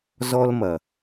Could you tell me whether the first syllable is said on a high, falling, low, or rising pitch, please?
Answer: high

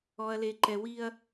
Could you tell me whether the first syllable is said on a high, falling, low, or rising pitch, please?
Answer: low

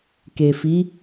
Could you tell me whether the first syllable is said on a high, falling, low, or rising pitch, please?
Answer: low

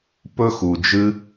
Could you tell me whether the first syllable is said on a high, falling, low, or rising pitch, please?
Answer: high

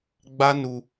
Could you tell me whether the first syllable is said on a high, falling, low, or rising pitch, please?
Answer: high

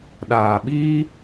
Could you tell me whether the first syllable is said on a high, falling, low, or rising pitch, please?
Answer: low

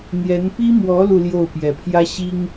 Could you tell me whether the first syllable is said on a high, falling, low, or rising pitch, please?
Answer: rising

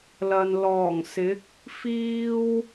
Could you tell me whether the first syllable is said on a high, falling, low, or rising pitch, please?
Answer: low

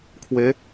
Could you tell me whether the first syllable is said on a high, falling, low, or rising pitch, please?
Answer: rising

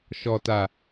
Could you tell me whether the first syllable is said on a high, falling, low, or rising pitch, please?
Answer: low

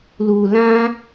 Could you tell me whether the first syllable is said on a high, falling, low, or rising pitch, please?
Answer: low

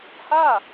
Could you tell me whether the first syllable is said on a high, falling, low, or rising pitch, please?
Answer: falling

